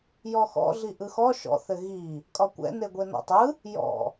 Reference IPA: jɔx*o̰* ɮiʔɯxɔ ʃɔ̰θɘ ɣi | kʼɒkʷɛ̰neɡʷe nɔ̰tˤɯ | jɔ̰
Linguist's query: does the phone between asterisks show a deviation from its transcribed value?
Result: yes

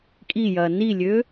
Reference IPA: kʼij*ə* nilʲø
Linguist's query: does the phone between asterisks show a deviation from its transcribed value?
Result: yes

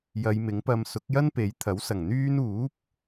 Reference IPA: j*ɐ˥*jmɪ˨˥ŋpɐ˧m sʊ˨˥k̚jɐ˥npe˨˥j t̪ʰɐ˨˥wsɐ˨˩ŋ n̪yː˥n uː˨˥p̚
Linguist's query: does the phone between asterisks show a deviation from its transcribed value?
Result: yes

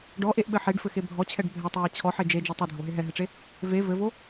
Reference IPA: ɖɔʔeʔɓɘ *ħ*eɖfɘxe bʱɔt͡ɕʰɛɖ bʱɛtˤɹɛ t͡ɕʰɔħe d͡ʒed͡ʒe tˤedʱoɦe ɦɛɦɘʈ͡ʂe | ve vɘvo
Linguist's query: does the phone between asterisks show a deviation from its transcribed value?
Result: no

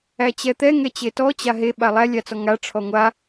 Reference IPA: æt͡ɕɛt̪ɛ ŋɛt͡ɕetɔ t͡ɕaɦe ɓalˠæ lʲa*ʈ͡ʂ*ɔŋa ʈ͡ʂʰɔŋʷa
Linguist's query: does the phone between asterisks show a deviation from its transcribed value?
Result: yes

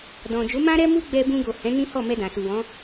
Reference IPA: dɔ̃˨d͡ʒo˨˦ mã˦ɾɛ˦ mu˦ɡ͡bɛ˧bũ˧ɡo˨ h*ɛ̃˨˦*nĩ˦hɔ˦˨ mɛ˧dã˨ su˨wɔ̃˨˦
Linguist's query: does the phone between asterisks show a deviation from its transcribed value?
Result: no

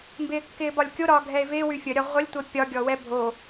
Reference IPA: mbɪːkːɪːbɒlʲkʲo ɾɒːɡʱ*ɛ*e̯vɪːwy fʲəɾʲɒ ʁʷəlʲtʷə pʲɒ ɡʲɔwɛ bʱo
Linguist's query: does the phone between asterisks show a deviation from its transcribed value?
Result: no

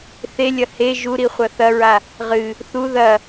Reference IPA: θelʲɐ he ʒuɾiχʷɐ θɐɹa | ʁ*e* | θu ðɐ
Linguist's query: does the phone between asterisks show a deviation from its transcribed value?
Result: yes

